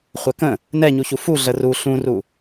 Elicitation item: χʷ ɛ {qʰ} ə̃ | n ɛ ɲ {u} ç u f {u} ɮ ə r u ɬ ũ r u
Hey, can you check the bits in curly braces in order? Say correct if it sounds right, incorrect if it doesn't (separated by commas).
incorrect, correct, correct